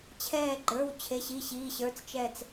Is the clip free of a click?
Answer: no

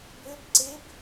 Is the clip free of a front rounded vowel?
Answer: no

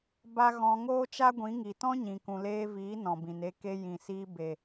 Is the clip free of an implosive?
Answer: yes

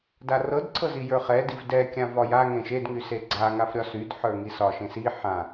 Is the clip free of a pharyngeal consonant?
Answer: no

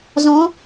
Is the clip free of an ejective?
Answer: yes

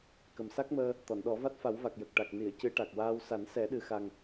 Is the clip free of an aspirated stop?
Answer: yes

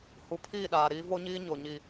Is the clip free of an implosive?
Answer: no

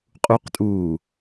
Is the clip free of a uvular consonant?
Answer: no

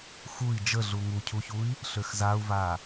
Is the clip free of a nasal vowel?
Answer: yes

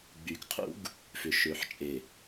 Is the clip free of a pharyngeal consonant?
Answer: no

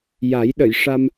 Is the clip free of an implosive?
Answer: no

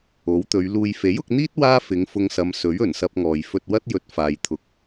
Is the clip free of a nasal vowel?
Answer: yes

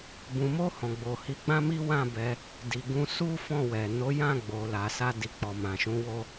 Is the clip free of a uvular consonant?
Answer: yes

